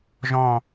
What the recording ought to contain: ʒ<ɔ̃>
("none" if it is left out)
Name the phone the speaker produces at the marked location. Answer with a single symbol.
ɔ̃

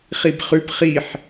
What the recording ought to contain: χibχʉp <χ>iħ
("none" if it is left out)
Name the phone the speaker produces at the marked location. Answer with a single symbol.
χ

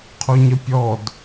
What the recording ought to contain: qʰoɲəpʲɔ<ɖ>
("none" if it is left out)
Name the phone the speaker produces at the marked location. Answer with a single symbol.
d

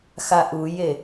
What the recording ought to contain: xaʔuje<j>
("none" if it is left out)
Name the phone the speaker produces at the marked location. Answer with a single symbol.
none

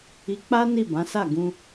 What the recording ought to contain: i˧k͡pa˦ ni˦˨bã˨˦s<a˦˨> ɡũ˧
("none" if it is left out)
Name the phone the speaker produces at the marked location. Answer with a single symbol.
a˦˨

